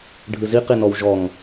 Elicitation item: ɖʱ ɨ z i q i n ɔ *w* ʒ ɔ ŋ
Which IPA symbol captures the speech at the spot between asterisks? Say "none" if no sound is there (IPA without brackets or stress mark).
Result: w